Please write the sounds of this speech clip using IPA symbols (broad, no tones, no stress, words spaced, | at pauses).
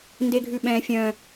ndeɡʱʉɓɛ̃ fʲœ̃